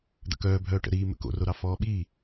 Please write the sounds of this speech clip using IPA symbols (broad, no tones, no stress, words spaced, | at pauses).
d̪ə̰kœː bʱœːʈə̰ ɾiː mə̰ko̰roɾɑ fɔːɓiː